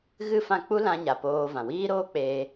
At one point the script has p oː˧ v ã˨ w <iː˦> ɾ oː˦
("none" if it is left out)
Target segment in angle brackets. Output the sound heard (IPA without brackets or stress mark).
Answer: iː˦